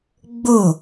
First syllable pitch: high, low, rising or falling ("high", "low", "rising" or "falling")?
falling